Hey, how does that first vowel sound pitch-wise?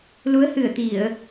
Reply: rising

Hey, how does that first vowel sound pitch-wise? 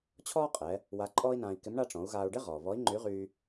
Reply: high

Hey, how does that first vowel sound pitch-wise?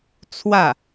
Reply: falling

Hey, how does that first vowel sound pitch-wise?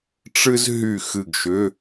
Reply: high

